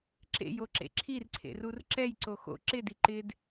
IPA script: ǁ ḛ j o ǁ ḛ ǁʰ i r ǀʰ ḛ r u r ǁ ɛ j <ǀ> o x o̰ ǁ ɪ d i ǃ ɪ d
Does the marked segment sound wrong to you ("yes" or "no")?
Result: no